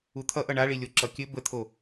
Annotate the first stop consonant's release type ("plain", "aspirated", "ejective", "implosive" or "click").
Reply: aspirated